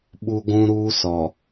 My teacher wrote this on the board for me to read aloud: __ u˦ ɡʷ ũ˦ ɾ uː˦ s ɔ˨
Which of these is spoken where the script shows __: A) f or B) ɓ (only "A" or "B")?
B